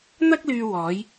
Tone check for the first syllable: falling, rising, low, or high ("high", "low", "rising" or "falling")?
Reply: high